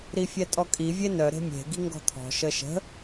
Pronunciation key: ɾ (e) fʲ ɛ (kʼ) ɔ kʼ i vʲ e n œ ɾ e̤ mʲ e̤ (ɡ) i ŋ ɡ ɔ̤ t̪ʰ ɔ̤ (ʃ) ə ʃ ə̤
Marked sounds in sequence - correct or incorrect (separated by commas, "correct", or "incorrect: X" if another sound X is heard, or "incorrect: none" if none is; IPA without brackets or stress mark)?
incorrect: i, incorrect: tʼ, correct, correct